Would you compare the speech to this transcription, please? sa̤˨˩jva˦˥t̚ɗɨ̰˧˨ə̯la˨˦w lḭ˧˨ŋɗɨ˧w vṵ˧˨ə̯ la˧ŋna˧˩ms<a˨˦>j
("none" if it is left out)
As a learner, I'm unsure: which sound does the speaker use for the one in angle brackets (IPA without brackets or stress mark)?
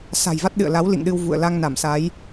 a˨˦